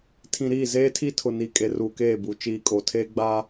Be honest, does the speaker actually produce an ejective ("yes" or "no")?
yes